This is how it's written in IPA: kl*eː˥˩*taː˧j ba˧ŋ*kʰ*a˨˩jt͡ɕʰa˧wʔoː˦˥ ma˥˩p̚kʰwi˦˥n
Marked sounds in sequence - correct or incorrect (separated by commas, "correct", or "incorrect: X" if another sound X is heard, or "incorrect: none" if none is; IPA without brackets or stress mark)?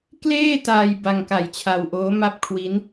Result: correct, incorrect: k